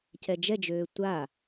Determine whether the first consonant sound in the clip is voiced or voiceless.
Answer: voiceless